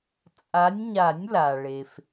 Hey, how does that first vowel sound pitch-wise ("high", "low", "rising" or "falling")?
rising